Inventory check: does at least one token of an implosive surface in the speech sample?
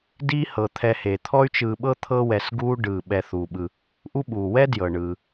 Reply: yes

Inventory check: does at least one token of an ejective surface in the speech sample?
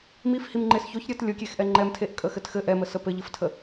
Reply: yes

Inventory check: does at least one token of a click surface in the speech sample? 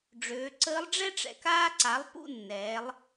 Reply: yes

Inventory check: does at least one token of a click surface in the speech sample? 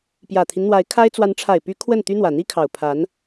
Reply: no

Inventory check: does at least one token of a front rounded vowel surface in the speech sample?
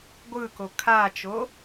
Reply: no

